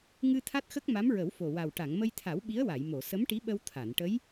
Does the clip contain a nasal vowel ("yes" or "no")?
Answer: no